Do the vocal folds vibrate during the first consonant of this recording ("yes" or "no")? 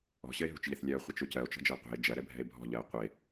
no